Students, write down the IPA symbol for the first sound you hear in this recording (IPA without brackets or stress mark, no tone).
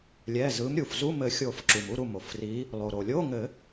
lʲ